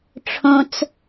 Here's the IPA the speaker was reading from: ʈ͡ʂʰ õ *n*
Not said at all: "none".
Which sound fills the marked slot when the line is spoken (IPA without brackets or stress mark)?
t͡s